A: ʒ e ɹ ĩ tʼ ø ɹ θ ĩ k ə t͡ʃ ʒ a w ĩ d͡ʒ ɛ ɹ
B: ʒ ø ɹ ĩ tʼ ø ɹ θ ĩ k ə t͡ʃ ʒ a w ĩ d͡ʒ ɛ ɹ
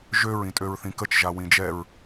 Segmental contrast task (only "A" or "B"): B